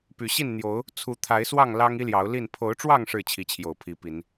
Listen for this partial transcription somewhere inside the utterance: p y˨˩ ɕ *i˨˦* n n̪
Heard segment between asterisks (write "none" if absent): i˥˨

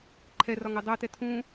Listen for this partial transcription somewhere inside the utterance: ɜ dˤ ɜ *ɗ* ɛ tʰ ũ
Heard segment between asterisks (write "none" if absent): t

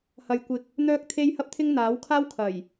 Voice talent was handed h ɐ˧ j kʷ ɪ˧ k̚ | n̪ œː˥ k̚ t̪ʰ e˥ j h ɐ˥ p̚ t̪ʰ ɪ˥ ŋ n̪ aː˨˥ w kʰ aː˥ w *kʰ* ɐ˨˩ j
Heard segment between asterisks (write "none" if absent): kʰ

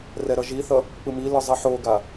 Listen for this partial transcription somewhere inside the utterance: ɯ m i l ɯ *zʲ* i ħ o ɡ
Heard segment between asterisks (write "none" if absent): zˤ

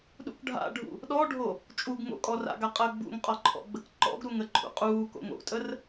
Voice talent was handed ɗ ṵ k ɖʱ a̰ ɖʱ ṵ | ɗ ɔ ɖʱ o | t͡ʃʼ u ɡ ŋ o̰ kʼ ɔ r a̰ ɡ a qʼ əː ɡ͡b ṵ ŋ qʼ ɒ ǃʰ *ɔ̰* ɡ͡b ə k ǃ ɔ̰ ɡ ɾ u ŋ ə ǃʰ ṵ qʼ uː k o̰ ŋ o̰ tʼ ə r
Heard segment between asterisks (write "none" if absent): ɔ̰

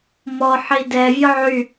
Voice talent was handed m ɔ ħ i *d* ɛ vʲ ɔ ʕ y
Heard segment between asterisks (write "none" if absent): d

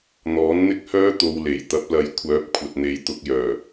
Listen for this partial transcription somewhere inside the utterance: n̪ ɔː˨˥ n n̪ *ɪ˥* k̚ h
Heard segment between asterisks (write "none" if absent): ɪ˥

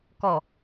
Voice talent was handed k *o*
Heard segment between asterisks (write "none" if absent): ɔ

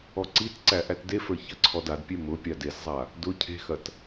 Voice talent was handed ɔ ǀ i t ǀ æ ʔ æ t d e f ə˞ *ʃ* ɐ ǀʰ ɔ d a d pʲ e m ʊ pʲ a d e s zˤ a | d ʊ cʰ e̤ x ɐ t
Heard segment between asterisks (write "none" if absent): ç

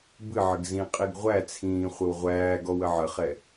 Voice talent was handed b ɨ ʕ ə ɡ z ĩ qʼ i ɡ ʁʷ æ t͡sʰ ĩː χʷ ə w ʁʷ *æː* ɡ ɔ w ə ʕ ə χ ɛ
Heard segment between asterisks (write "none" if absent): æː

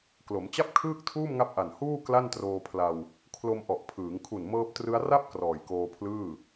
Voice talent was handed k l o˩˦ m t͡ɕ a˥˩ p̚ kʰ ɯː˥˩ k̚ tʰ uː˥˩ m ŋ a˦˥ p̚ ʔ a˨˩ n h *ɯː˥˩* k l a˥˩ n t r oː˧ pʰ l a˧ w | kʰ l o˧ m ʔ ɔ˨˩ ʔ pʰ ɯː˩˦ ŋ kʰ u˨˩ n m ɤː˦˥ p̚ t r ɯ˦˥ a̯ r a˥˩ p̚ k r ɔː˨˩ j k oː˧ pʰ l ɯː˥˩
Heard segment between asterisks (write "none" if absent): uː˥˩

